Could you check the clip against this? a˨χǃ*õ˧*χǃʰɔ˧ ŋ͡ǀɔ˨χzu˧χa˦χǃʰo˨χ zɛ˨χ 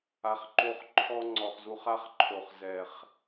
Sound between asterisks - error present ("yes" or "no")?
yes